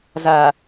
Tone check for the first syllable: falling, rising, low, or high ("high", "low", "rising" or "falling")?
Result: low